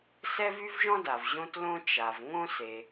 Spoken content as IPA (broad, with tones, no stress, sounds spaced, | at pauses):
s ɛ˥ v y˥ v ʒ ɔ̃˥ d a˩ v ʑ õ˥ t l õ˥ t͡ʃ a˩ v ŋ õ˥ s e˩